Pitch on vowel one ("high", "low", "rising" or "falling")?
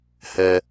high